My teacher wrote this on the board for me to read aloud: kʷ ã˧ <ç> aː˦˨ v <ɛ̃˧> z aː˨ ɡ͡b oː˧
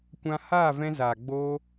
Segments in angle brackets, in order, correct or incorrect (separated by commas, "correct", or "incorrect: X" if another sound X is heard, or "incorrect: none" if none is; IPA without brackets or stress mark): incorrect: h, correct